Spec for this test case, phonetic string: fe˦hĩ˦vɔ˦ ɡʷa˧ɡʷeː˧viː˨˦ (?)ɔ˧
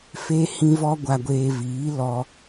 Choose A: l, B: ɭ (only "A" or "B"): A